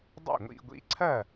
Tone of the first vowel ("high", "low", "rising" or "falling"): falling